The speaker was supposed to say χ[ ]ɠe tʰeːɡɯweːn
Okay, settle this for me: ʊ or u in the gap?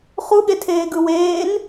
u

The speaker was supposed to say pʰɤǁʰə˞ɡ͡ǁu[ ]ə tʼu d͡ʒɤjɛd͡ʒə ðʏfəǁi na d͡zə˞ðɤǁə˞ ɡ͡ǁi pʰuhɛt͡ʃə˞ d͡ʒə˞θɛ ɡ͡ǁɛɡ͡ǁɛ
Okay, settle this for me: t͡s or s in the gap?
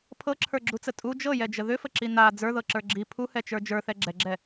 t͡s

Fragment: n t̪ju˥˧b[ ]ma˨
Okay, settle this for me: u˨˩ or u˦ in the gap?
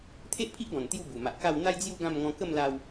u˨˩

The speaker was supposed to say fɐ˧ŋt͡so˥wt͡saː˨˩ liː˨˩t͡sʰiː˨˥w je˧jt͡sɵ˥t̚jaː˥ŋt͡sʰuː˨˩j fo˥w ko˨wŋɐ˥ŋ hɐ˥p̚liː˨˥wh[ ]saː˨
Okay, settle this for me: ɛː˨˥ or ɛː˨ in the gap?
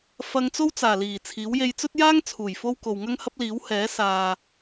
ɛː˨˥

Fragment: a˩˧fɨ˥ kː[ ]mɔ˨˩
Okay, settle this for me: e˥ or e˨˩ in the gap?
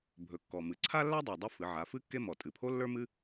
e˥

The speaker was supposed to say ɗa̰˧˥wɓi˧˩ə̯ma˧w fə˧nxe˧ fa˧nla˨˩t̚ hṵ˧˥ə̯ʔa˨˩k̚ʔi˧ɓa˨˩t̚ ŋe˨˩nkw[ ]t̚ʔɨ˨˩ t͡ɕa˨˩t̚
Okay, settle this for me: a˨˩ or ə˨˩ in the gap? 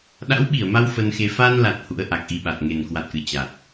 a˨˩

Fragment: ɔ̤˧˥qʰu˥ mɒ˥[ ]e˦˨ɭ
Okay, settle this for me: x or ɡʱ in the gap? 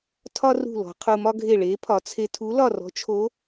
ɡʱ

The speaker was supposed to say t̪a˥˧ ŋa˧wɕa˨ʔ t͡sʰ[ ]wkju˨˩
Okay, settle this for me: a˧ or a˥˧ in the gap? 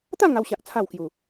a˥˧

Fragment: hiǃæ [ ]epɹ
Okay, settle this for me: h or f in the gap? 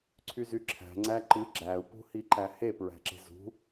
h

